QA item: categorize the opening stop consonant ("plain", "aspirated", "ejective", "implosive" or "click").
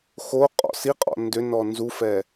ejective